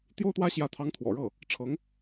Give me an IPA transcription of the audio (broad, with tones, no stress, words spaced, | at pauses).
t̪jo˥ʊ̯t̪wä˥ ɕjä˧˥t̪ʰɑ˧˥ŋ t̪ʰwɔ̰˨˩ɻɤ˥˩ | ʈ͡ʂʰɤ˧˥ŋ